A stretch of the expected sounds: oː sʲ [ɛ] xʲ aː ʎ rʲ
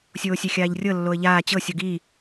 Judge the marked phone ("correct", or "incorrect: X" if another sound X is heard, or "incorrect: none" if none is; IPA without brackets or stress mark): correct